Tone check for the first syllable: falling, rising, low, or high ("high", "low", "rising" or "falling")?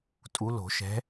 rising